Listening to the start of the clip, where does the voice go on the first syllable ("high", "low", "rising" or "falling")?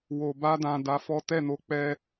low